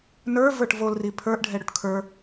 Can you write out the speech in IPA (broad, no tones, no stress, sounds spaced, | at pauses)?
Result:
n ə˞ v ə˞ ʈ v o l r i pʰ ə˞ ʔ ɖʱ ɛ ɽ ʊ ʈ kʰ ə˞